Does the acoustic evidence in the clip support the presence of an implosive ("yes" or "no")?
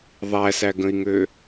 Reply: no